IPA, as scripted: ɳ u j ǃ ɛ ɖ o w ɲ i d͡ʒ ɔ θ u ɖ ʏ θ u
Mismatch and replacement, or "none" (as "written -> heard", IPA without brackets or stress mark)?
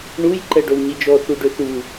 none